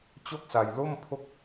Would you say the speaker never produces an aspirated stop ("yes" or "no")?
no